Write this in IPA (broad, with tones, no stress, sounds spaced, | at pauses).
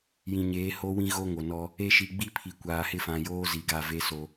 j ĩ˨ ɲ eː˨˦ h o˦ w ĩ˦ ɣ o˦ ŋ o˨ n ɔ˦ | e˦ ʃ i˨ ɡ͡b i˦ pʰ i˨ kʷ aː˨ h ɪ˦˨ f ã˨ j oː˦ z i˨ ɡ a˦˨ v e˦ s o˦